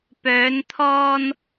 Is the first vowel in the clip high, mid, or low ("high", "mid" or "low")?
mid